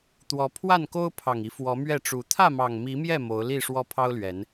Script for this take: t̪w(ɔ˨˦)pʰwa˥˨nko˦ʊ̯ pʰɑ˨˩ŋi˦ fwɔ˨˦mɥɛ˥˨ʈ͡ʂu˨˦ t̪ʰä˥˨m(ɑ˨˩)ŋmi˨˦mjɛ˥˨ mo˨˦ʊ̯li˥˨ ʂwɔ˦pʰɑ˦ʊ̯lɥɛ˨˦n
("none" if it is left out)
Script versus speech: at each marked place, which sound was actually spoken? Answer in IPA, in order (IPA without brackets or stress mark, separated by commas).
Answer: ɔ˨˦, ɑ˨˩